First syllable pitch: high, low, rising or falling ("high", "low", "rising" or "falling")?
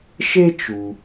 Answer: high